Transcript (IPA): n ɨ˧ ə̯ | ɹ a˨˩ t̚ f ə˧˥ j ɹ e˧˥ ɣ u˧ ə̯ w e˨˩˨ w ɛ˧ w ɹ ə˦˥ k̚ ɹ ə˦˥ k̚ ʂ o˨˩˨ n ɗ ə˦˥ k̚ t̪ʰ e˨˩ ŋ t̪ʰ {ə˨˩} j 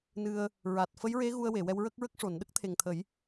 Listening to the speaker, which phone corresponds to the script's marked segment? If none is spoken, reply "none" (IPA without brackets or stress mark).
ə˨˩˦